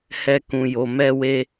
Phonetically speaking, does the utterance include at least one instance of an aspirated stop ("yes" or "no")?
no